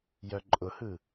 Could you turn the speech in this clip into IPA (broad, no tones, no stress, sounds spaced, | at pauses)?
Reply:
j œ ǃʼ ʊ h ɯ